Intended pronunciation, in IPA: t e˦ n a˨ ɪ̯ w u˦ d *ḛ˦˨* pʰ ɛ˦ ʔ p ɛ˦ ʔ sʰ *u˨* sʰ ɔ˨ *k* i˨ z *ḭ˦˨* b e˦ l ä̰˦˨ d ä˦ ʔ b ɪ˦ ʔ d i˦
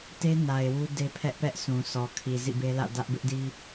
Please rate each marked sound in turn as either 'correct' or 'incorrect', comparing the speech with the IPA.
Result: incorrect, incorrect, incorrect, correct

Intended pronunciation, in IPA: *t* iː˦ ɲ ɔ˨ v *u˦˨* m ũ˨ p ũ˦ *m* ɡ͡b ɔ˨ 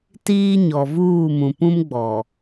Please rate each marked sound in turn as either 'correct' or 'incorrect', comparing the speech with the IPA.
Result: correct, incorrect, correct

